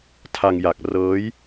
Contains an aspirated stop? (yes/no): yes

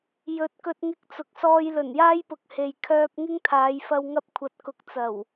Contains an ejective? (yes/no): no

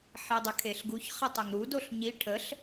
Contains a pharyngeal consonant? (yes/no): yes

